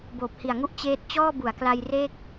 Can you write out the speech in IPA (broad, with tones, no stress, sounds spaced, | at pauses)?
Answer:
b oː˨˩ p̚ h i˨˩ a̯ ŋ u˦˥ ʔ t͡ɕ eː˦˥ t̚ t͡ɕ ɔː˥˩ b u˩˦ a̯ k l a˧ j r e˥˩ k̚